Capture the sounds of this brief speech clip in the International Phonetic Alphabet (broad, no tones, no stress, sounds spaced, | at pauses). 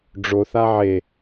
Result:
ɖ͡ʐ o θ a ʕ e